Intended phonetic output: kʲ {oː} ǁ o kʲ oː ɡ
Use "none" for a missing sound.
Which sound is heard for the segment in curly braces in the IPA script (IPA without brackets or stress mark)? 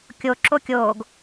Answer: o